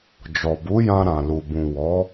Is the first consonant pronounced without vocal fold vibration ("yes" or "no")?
no